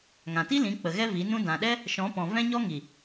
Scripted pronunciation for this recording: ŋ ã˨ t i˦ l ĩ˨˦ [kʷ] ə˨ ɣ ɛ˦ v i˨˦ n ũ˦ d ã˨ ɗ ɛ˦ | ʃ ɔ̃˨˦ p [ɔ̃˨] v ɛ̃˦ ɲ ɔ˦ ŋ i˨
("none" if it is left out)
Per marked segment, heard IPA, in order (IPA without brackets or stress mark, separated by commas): k͡p, ɔ̃˨